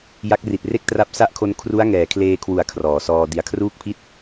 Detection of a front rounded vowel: absent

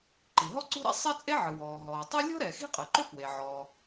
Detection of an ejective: present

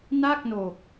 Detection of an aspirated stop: absent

